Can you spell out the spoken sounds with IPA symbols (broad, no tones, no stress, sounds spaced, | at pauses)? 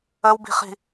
ə w b i̤ χ i̤